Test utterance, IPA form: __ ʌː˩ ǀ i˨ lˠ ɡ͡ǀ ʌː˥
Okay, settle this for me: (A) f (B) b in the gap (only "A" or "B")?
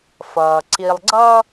A